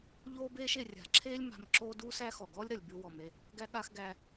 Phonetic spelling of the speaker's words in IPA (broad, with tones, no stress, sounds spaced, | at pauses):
ʎ oː˥ b eː˥ ʃ e˩ rʲ a̤˩ ǁʰ eː˥ lʲ m a̤˧ m ǁ oː˥ d uː˥ s æ˥ x ɔ˩ ɡ ɔ˥ lʲ ɾ ɐ˩ lʲ b ʉ˧ w ɔ˩ m e˧ | ɡ æ˥ ɠ a˥ x ɡ æ˧